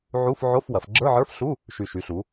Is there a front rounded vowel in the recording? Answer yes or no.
yes